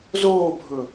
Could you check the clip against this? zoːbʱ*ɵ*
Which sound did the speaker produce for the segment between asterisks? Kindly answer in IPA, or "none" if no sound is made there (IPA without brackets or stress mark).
ɵ